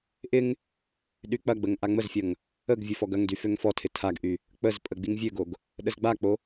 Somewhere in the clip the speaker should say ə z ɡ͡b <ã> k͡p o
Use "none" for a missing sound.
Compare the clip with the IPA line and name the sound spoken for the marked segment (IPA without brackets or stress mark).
a